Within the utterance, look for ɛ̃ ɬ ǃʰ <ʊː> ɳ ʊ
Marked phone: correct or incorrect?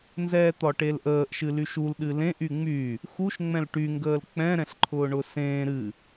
correct